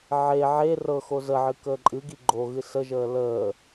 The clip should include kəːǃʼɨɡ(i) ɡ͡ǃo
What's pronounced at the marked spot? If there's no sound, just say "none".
i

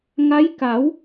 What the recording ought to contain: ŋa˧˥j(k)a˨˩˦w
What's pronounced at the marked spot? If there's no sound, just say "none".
k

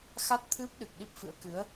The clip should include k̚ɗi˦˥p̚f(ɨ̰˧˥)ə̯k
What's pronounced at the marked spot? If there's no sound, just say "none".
ɨ̰˧˥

